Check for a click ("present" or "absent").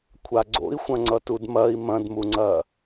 present